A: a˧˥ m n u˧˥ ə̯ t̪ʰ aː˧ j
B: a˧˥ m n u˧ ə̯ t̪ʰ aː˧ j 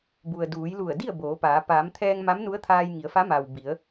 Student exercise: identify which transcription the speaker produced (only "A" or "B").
A